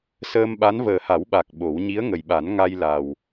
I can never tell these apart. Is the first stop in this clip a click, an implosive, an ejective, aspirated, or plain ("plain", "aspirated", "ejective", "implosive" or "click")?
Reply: implosive